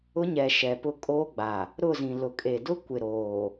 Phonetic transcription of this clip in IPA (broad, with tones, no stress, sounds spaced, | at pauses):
ʊ˦ ɲ ɛ˨ ʃ ɛ˨ p ʊ˦ kʼ oː˦ ɡ͡b a˨ | ɾ ʊ˦˨ z ĩ˨ l ʊ˨ kʼ e˨ d ʊ˦ kʷ ɪ˨ ɾ oː˨